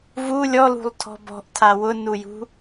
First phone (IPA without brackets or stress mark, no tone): v